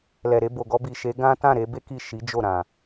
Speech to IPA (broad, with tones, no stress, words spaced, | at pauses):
lɛ˨ɾe˧bo˨ɡɔ˧ bi˨ʃe˨˦ ɡã˦ tã˦˨ɾe˧be˦ ki˦˨ʃi˨˦d͡ʒo˦˨ ɾã˨